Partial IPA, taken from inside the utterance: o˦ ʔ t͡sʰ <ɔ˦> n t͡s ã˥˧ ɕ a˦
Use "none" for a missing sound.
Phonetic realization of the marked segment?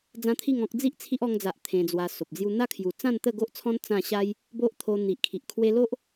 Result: ɔ̃˦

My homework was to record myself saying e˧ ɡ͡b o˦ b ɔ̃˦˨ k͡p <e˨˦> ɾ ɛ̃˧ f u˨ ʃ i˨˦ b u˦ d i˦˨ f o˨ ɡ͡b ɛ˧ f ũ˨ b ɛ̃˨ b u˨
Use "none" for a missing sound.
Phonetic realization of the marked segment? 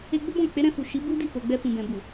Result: e˨˦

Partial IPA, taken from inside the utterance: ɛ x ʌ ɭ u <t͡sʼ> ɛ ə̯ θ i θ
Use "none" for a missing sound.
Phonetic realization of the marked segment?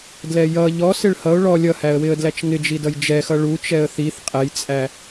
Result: t͡ʃ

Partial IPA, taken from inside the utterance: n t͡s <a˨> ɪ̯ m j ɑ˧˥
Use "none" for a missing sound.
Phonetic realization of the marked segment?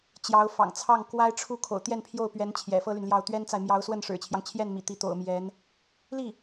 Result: a˨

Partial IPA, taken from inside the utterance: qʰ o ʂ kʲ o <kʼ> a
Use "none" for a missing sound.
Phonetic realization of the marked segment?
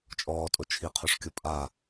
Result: pʼ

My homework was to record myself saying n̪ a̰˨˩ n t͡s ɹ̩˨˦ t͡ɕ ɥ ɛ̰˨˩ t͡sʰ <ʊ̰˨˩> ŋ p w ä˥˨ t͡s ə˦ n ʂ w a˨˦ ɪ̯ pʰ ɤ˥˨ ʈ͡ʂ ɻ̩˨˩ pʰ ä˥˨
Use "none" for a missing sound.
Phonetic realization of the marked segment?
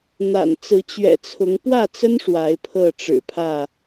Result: ʊ˨˦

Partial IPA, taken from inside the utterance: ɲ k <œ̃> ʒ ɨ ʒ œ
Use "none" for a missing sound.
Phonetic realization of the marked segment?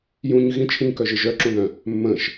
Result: œ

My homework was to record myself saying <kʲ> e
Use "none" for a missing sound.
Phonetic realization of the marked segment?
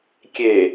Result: kʲ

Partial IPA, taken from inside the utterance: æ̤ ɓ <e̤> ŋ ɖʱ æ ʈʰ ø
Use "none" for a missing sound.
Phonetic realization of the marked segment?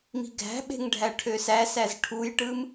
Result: e̤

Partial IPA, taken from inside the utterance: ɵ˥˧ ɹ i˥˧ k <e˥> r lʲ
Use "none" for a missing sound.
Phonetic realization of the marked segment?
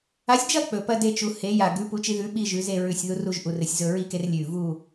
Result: e˥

